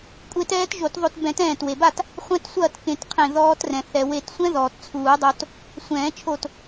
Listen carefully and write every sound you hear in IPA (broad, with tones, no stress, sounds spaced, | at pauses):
kʷʼ e˦˥ t ɛː˦˥ t ʒ o˨˩˦ t ðˤ o˧ t b ɛ̃˨˩˦ t ɛ̃ː˧˩ t w e˩ b a˥˨ t | χʷ ɛ̃˦˥ t sʷ ɐː˥˨ t k ẽ˨˩˦ t qʰ ẽ˧˩ ð ɔː˧ t r ɛ̃˩ θ ɛ˩ w e˨˩˦ t sʷ ɛ̃˦˥ ð ɔː˩ t t͡sʰ uː˨˩˦ dˤ o˧ t | sʷ ɛ̃ː˨˩˦ t͡ʃʰ o˧˩ t